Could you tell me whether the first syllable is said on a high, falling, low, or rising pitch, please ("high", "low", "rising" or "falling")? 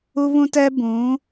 high